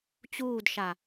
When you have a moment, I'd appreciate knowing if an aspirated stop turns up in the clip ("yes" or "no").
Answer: no